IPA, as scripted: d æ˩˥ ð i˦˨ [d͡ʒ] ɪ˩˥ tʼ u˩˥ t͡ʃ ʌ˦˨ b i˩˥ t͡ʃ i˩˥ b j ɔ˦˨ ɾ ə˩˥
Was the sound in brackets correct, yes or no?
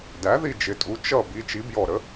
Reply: yes